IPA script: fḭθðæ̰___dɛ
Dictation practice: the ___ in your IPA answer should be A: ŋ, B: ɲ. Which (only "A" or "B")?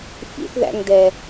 A